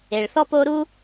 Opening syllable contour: low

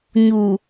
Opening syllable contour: low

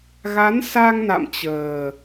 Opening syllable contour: rising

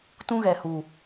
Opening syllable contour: high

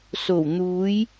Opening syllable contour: low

